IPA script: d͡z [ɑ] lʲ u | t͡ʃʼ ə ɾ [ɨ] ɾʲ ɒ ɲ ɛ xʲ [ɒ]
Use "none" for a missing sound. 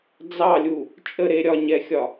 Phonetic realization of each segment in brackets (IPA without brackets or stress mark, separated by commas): ɑ, e, ɒ